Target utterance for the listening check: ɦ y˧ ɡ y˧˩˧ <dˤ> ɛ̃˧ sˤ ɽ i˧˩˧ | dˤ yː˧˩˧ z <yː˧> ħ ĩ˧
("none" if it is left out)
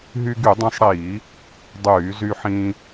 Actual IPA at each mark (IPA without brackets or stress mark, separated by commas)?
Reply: dˤ, y˧